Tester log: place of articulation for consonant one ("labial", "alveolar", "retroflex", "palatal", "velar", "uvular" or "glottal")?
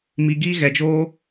labial